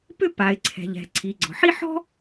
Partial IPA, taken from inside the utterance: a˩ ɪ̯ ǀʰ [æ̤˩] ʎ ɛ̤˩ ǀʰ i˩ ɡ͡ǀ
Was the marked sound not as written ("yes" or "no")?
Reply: yes